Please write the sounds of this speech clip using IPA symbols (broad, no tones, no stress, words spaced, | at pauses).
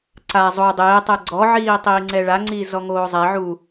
ǀa zˤo dˤeːtˤɛ ɡ͡ǀɔʕiː tˤiːŋ͡ǀɛɭaŋ͡ǀi zɔŋoːzˤɛʕuː